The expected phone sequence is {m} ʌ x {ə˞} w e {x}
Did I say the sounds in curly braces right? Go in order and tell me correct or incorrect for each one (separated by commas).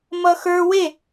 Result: correct, correct, incorrect